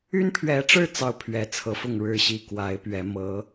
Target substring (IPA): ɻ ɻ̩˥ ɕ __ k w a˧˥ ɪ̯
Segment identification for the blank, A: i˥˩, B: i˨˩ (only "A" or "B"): A